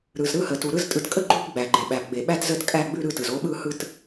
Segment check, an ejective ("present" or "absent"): present